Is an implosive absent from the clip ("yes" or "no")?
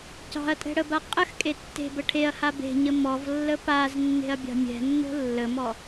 yes